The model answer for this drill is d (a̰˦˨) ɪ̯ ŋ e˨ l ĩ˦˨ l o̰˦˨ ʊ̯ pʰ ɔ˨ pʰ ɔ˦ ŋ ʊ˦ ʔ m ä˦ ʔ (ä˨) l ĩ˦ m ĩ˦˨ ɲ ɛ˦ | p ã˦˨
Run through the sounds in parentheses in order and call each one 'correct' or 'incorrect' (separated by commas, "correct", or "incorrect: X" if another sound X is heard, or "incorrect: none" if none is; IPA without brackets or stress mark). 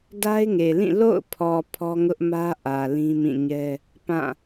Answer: incorrect: a˦, correct